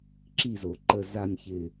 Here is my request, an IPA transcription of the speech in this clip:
ǁ i˨ z o˩ ǃ ə˨ z a˨ nʲ ç ɪ˨

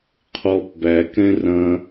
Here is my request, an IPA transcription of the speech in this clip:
qʰ ɔ p b æ k ɛ̃ r ɐ̃

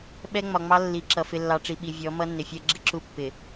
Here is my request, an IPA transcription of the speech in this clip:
ɓ ɛ˦ ŋ͡m ɒ˨ ŋ͡m ɑ˦ lː i˨ ǁ ʌ˨ f ɪ˨ lː ɑ˨ ʈ͡ʂ i˨ ɓ i˨ vʲ ɔ˨˦ m ʌ˦ nː ɪ˨ fʲ ɜ˦ ɡ͡ǁ ɪ˦ ǁ u˦ pː ɪ˨

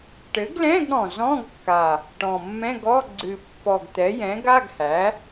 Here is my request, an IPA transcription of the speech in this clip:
ʈ ɘ˩˥ ɡ l ɛ̃˧˥˧ ɡ ɽ ɔ̃˨˩ z ɔ̃˧˥˧ ɡ kː a˨˩ | ʈ ɔ̃˨˩ mː ɛ̃˧˥˧ ɡ ɔ˧˥˧ ɡ͡ǀ ɨ˨˩ pː ɔ˨˩ ɡ t̪ ɛ˩˥ j ɛ̃˩˥ ɡ a˧˥˧ ɡ h æ˩˥

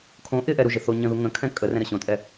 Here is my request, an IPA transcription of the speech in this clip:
kʰ õ ʔ ɪ ʔ ɛ ɾ u ʒ ɪ θ o ɲ ə̃ ð u ŋ ə̃ kʰ ɛ̃ kʼ ə r ɛ̃ ɾ ə ɕ õ tʼ ɛ

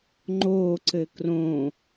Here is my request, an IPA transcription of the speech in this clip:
ŋ͡ǃ o ǀ ɘ k r õ

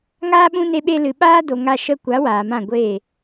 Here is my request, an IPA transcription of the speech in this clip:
ŋ aː˦ ɓ ũ˦ n e˧ ɓ e˧ l ɨ˨ ɓ aː˦ d o˧ ŋ a˧ ʃ ə˧ kʷ a˨˦ w aː˨ m ã˦˨ ɡʷ eː˦˨

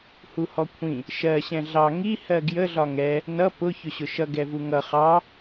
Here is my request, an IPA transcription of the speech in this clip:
h u h ɔ kʷʰ ĩ | ʃ ɜ ɕ ɛ̃ ɮ ɑ ŋ i h ɜ ɡ j ə ɮ ɒ ŋ ɛ | n ʌ p ʊ ç ʊ ɕ ʊ ʃ ʌ ɡ ɛ v u ŋ ʌ χ ɑ

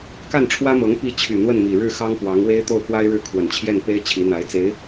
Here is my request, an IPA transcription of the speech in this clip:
k a˥˩ n ʈ͡ʂʰ w ä˥ m ɤ˧˥ ŋ p i˥˩ t͡ɕʰ y˨˩ n̪ w ə˥˩ n m i˨˩ ɻ ɻ̩˥˩ x ɑ˥ ŋ p w ɑ˧˥ ŋ w e˥ ɪ̯ t̪ o˥˩ ʊ̯ k w a˥ ɪ̯ ɻ ɻ̩˥˩ kʰ w ə˨˩ n t͡ɕʰ j ɛ˥˩ n p e˥ ɪ̯ t͡ɕʰ i˧˥ n̪ a˧˥ ɪ̯ t͡s e˧˥ ɪ̯

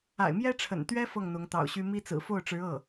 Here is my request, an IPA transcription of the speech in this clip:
a̰˨˩ ɪ̯ m j ɛ˥ ʈ͡ʂʰ ə̰˨˩ n t̪ ɥ ɛ˥ f ɤ˥˩ ŋ n̪ ʊ˧˥ ŋ t̪ ɑ̰˨˩ ʊ̯ ɕ y˥ m i˥ t͡s ɹ̩˨˩ f o˥˩ ʊ̯ ʈ͡ʂ ɻ̩˧˥ ɤ˥˩

